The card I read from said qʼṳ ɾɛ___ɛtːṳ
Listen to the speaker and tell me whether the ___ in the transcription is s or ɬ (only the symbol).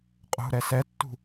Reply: s